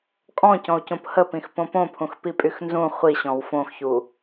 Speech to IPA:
kʼ ɔ̃ c ɔ̃ u̯ c õ p h ə p ĩ x p õ p õ pʰ ũ x p i pʼ y x n z ũ χʷ i ɕ ɔ̃ w f õ x ç u

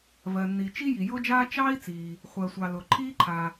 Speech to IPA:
v ɜ˩ nː i˩ t͡ʃ i˥ j i˩ j ʊː˥ d͡ʒ aː˥ t͡ʃ ɑː˥ i̯ t͡s iː˩ | χʷ ɜ˩ sʷ ɑ˩ l ʊː˩ ǃʰ iː˥ ǃʰ a˩

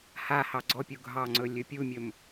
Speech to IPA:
h a h ɑ ɡ͡ǀ ɔ pʲ u ɡʱ ɑ ŋ͡ǀ ɵ lʲ ɵ pʲ u mʲ ɵ m

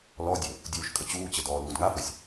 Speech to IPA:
l ɔ dʲ ɵ | dʲ uː ʃ kʼ ə t͡ɕ uː t͡ɕ ə d ɔː l uː d ŋ a f ɵ sʲ

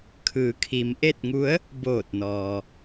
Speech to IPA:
kʰ ɯː˩˧ kʰ i˩˧ m ʔ e˥˨ t̚ ŋ u˧˥ ə̯ | b oː˧˩ t̚ n ɔː˩

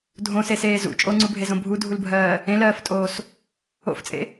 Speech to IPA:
dʱ õ s e s eː z ṵ t͡ʃʼ o ŋ͡ǀ u bʱ e z õ bʱ u dʱ u l bʱ ɜː | ẽ l ɜː f tʼ oː s | o̰ f t͡sʼ ḛ

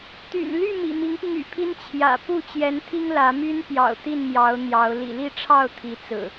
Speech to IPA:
t̪ y̰˨˩ n l y˥˨ m ḭ˨˩ m i˨˦ ŋ p i˧ ŋ y̰˨˩ pʰ i˦ n t͡ɕʰ j ä̰˨˩ p u˥˨ t͡ɕ j ɛ˨˦ n t̪ʰ i˦ ŋ l ä˨˦ m y˦ n p j ɑ̰˨˩ ʊ̯ t̪ i˥˨ n m j ɑ˨˦ ʊ̯ n̪ j ɑ˨˦ ʊ̯ l ḭ˨˩ l i˥˨ ʈ͡ʂʰ ɑ˥˨ ʊ̯ t̪ʰ i˨˦ t͡s ɹ̩˨˩

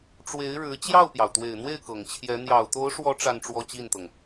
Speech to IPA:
ʈ͡ʂ w e˧˥ ɪ̯ ɻ ɻ̩˧˥ t͡ɕ j ɑ˥˩ ʊ̯ p j ɑ˩ ʊ̯ t̪ w e˨˩ ɪ̯ n̪ w e˥˩ ɪ̯ k ɤ˨˩ ŋ t͡ɕʰ j ɛ˧˥ n̪ j ɑ˨˩ ʊ̯ t̪ o˧˥ ʊ̯ ʂ w ɔ˧˥ ʈ͡ʂ a˥˧ n ʈ͡ʂ w ɔ˥˧ t͡ɕ i˥˩ n t̪ ɤ˩ ŋ

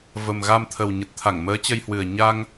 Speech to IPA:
v ə˨˩ m ɣ a˧ m t̪ʰ ə˨˩ w ɲ ə˨˩ t̚ t̪ʰ a˧˩ ŋ m əː˨˦ t͡ɕ ə˧ j h w ɨ˨˩ ə̯ ɲ a˧ ŋ

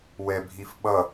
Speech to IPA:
w ɛ bʱ i f ɓ ʌ

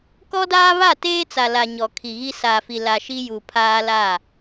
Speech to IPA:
k ɔ˦ d aː˦ β a˦˨ t eː˦ t͡s a˨ l a˨ ɲ ɔ˨ kʰ i˨ ɣ i˦ s a˨ f i˨ l a˨ ʃ i˦ j u˨ pʰ aː˦ l a˦˨

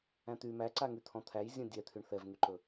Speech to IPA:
æ̃ t̪ y m æ ǀ a ŋ y t̪ʰ ɔ̃ t̪ʰ æ j zʲ ɔ̃ dʲ ɛ t̪ʰ y ɳ θ ɛ v ŋ y ǃ ɵ

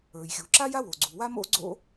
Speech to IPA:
ə˞˩ j xʲ u˩ ǁ a˥ j a˥ w o˩ ɡ͡ǀ u˩ w a˥ m o̰˥ ɡ͡ǀ o̰˥

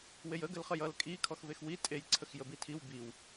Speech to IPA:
w e j ə ɡ ə l χ ə j ʌ l kʼ i kʰ ɔ x v e x w i tʼ e j ǀʰ ə x j ə b i tʰ i w b i w

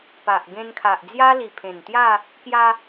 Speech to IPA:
p a˨ ʔ ɡ ẽ˧ n kʰ a˨ ʔ d͡z j a˦ l i˨˩ pʰ ẽ˨˩ n t̪ j a˥˧ | k j a˧

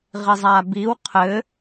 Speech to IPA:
ʁ i zˤ a b i w qʰ ɘ

